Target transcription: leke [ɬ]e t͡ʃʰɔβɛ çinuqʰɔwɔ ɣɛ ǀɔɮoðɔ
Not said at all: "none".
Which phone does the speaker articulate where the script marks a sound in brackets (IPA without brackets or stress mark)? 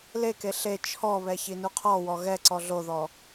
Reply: ɬ